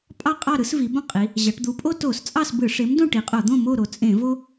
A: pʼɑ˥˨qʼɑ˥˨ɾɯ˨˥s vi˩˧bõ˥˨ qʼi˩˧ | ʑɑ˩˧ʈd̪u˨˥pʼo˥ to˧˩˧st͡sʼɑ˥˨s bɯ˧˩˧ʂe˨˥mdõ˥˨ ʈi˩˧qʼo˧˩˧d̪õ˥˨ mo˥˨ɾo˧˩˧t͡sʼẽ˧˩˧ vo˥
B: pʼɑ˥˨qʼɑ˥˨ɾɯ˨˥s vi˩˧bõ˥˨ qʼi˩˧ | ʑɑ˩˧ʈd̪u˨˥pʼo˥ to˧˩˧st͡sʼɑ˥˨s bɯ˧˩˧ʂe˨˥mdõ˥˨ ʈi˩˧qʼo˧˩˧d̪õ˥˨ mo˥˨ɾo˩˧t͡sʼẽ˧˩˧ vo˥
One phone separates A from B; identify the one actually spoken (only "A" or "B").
B